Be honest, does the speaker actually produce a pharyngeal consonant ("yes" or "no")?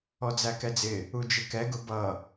no